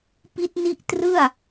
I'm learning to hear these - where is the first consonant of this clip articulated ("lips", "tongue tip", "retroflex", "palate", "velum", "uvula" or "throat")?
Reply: lips